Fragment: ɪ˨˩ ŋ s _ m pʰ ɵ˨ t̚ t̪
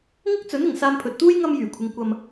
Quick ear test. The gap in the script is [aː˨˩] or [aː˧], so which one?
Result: aː˧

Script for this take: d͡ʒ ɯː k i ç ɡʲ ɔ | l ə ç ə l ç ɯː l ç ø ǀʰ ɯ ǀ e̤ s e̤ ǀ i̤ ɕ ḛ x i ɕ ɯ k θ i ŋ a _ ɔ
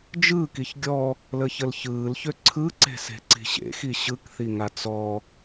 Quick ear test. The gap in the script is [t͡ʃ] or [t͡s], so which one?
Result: t͡s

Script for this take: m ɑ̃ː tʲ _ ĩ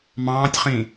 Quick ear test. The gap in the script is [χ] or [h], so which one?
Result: χ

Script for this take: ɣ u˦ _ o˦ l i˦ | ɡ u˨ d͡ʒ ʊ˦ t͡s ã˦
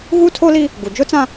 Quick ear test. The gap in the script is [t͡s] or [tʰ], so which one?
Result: tʰ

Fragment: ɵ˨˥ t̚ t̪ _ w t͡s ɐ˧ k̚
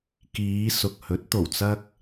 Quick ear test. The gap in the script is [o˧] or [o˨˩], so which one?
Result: o˨˩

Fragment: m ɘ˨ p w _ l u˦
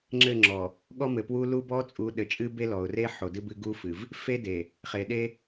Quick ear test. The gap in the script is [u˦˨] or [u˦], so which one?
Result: u˦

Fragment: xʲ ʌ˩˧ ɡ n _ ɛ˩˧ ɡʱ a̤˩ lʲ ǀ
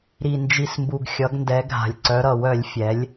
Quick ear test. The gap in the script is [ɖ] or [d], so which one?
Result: d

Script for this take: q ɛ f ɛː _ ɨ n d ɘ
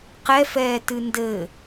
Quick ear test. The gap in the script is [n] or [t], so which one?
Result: t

